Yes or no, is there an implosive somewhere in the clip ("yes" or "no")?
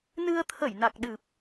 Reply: yes